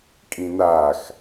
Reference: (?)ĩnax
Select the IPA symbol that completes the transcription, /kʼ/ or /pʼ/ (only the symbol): kʼ